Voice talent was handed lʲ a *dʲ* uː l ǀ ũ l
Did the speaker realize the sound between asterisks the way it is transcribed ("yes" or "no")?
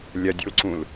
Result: yes